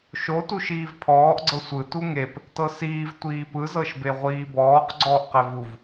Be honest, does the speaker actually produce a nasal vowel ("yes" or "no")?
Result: no